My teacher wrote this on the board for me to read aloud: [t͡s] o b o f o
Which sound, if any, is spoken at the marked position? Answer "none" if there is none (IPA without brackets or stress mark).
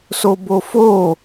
s